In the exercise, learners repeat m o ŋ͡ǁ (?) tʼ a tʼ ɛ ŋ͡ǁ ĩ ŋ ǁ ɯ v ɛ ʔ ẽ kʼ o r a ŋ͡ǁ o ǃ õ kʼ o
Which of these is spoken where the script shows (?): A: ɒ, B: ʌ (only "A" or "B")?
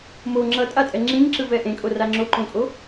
B